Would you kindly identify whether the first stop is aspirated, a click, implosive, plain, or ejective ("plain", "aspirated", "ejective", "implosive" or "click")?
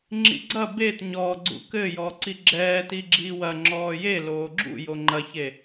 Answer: click